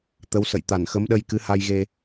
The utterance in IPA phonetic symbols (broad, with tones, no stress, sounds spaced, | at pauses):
t̪ ə˨˦ w s ə̰˧˨ j t̪ a˧˩ n x ə˨˦ m ɗ ə˧ j k ɨ˨˦ h a˧ j ɣ e˧